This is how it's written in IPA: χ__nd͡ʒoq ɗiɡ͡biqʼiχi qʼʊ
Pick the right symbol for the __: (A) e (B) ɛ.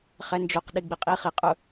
B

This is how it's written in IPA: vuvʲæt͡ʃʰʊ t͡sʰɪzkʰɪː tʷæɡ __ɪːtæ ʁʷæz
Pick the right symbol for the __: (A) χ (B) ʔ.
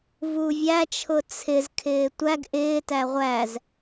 B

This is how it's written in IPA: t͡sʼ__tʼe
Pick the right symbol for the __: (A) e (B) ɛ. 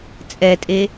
B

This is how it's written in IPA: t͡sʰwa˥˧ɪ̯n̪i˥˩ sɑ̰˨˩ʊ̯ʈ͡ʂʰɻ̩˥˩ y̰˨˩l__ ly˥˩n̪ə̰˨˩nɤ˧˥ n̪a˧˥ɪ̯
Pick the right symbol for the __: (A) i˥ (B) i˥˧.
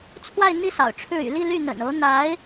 B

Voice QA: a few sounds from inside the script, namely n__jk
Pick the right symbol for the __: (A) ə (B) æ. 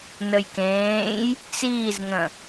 A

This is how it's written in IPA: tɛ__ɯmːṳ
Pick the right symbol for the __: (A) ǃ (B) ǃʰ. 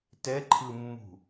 B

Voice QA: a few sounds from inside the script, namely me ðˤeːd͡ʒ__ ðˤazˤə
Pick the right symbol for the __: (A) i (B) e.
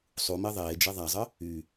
B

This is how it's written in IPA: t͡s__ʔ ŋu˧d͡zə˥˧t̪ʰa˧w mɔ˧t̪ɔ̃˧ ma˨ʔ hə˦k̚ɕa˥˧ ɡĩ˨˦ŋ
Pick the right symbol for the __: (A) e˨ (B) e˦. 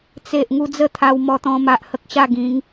A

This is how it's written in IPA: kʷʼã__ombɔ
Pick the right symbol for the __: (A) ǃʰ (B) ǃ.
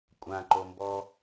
B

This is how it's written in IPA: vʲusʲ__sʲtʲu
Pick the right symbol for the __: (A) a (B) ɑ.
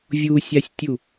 A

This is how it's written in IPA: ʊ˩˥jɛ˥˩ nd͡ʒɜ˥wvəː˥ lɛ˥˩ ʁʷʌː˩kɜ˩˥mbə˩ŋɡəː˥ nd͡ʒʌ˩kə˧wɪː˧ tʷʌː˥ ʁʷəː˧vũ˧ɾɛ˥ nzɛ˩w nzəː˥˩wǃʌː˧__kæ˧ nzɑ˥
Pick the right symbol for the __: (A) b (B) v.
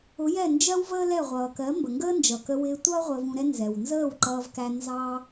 B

